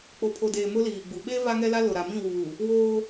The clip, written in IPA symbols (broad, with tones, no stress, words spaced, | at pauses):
k͡po˨pʰo˨deː˨ mʊ˦liː˨ɡ͡bu˨ ɓe˦ va˦ŋɛ˦la˦ lʊ˨ɾa˨mĩ˦˨wuː˨ | woː˦